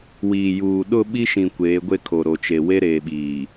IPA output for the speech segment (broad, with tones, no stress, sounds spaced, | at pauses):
w iː˨ j uː˨ ɗ ʊ˦˨ ɓ i˦ ʃ ĩ˨ kʷ eː˨˦ ɡʷ e˦ kʰ o˨ ɾ o˨ t͡ʃ e˨ w e˦ ɾ eː˨ ɓ iː˨